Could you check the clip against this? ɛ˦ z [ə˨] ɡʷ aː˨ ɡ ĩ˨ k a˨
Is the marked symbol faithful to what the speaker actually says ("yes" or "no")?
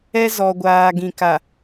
no